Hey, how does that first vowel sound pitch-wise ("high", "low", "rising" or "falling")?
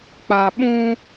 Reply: low